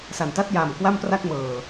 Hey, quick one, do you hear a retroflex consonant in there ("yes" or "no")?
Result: no